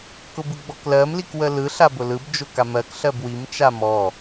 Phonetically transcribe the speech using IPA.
kʊbɯɡ͡bɔklɜm likwəlɯ ɬabʊlɯb d͡ʒʊkamɜk ɬɜbwim t͡ʃamɔ

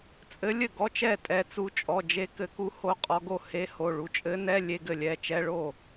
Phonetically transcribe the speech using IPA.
t͡sʼɘ˧˥lʲɘ˥˩ɡɔ˧˥˧t͡ʃɛ˥˩ tʼɛ˧t͡su˧t͡ʃʼɔ˩˧˩d͡ʒe˧ kɘ˧˥ku˧˥ ho˧qʼɔ˧ɡo˥˩ he˧˥ho˩˧˩ ɭu˧˥˧ t͡ʃʼɘ˧˥nɛ˧˥˧ lʲe˧˥˧ɡɘ˥˩lʲɛ˩˧˩ t͡ʃɛ˧˥˧ɭo˥˩

